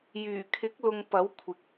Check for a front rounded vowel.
present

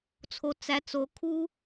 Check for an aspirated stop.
present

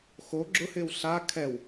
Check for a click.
present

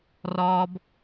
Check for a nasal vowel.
absent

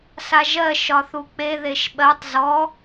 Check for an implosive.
present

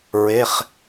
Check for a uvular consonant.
present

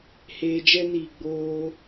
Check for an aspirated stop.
absent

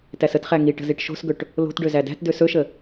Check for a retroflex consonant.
present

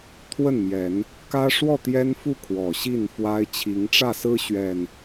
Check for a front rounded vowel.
absent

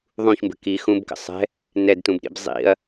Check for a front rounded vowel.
absent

